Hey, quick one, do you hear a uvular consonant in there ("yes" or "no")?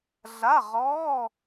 yes